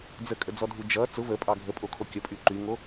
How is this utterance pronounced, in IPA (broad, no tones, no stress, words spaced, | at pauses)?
d͡zəkʼəd͡zɔdʱu d͡ʒʌ t͡sʊ vəpʼɑ ɡʱəpʼokʰo kʲəpʼy ǃyŋo